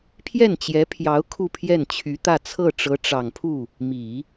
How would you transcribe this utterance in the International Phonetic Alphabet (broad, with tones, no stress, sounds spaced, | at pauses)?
pʰ j ɛ˥˩ n t͡ɕ j ɛ˧˥ pʰ j ɑ˧˥ ʊ̯ kʰ u˥˧ pʰ j ɛ˥˩ n t͡ɕʰ y˧˥ t̪ ä˥˧ t͡sʰ ɤ˥˩ ʈ͡ʂ ɤ˧˥ ʈ͡ʂ ɑ˨˩ ŋ pʰ u˥˩ | m i˨˩˦